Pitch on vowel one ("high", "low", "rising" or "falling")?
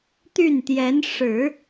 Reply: falling